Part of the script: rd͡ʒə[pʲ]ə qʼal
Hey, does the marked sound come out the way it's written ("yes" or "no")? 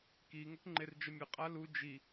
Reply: no